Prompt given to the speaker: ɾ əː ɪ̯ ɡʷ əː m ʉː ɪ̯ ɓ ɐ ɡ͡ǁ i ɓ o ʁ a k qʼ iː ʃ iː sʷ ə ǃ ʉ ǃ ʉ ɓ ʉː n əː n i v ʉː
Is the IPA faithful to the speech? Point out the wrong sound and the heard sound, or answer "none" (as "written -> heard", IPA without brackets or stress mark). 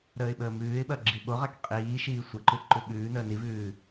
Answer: ɡʷ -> ɓ